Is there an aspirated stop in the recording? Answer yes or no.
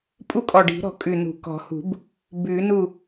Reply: no